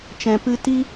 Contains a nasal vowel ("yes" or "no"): yes